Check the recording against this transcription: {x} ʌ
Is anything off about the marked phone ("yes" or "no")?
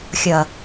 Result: yes